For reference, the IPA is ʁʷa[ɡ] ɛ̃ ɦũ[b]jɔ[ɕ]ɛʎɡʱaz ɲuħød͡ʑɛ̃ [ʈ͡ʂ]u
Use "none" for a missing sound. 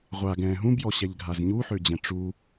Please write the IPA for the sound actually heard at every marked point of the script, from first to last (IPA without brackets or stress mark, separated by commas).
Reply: ɡ, b, ɕ, ʈ͡ʂ